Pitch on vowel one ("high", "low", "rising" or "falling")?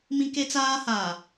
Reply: high